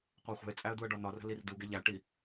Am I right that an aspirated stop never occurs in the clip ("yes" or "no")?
yes